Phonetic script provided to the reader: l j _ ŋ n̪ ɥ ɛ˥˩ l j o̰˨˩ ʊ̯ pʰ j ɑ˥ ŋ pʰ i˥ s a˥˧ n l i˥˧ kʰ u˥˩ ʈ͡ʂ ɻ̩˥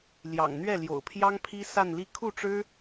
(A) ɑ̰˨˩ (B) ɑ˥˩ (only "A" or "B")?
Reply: A